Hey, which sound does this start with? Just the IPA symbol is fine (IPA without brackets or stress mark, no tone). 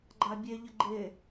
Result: ɡ͡ǃ